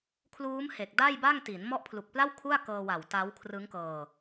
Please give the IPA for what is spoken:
kʰ l uː˦˥ m h e˨˩ k̚ d a˥˩ j b a˥˩ ŋ t i˩˦ n m ɔ˦˥ ʔ pʰ l u˨˩ k̚ p l a˥˩ w kʰ u˥˩ a̯ k ɤː˧ w a˨˩ w t a˦˥ w kʰ r ɯ˦˥ ŋ k ɤː˧

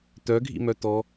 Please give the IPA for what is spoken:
t̪ œ ɡʱ ḭ m œ t̪ ɔ

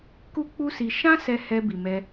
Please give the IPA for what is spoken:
k u˦ k͡p u˦ s i˧ ʃ ã˦ s ɛ˧ h ɛ˧ b i˨ m ɛ˧

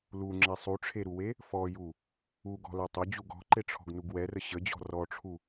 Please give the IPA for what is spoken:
l u ŋ͡ǁ ɛ sˤ u ʈ͡ʂʰ e ɾ u w e | f ɔ j u | u ɡ ɔ̤ l ɛ tˤ ʊ d͡ʑ u ɡ ɔ̤ ǃ e ʈ͡ʂʰ ɔ̤ ɡ n u ɡ w ɛ r ə ɕ ə d͡ʑ ɔ̤ r ɔ ʈ͡ʂʰ u

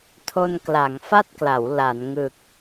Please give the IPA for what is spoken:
tʰ o˧ n k l a˩˦ ŋ f a˥˩ t̚ k l a˩˦ w l a˩˦ n ŋ ɯ˨˩ k̚

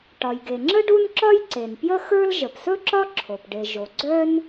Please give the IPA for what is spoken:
ʈ ɒ˩ j ɡ e˩ ŋ͡ǁ ə˥ ɖ u˥ n ǁ ɒ˥ j ǀ e˩ n p j ə˥ x ə˞˥ l ʒ ə˩ p s ɵ˥ ǁ ɒ˥ ǁʰ o˩ p ɖ e˩ ʒ o˩ ɡ͡ǀ œ˥ n

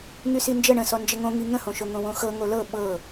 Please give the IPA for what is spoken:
ŋ y s i n d͡ʒ ə ɳ ə̃ s ɔ n d͡ʒ ə ŋ õ ŋ i ŋ ə̃ h õ ʃ o ŋ õ w õ x ɤ ŋ o l ɤ ɓ ɤ

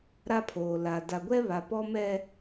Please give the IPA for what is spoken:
ɾ a˦ pʰ oː˨ l a˨ d a˨ ɡʷ ɛ˦ β a˨ p ɔ˦ m ɛ˦

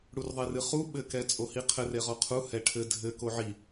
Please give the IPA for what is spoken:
ɽ u r ðˤ e r ɨ χ u ɓ ɘ k ɛ t͡sʼ o h i qʰ ɘ r e ʁ ɔ qʰ u h ɛ ʈʰ ɘ dʱ ɘ k o ʕ i

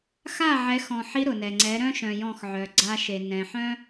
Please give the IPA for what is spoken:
x a˦˨ ʕ ɛ˨˦ x ɔ̃˨ ħ i˦ ɾ ʊ˨ n ɛ˨ ŋ͡ǀ ɛ˨˦ ɾ œ̃˦ ʃ œ̃˨ j ɔ̃˦˨ x ʕ œ˨ ɡ͡ǀ a˦ ʃ e˨ n ɛ̃˨ ħ œ̃˦

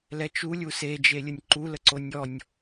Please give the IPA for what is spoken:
l ɛ t͡ʃ u lʲ u s e d͡ʒ e lʲ ə nʲ ǃ u l ə ǀ o nʲ ɔ nʲ

